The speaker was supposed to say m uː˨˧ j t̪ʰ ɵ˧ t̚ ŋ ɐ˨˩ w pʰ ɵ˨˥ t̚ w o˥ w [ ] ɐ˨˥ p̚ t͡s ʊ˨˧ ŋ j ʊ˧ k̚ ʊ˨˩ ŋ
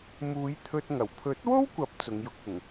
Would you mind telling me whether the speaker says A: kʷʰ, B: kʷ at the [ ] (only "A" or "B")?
B